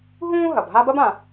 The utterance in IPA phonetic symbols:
ɦũː˥ ɦɐ˩bɦa˥ bɐ˥bã˩

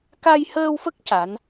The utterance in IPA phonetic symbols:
ka˧jhəː˧wfə˦˥k̚ ca˧˥n

